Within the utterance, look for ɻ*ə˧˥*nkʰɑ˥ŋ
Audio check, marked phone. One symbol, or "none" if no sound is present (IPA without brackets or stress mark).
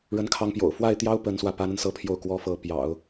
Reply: ə˥